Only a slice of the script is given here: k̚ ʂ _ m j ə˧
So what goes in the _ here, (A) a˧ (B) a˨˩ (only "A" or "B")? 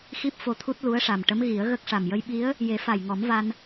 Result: B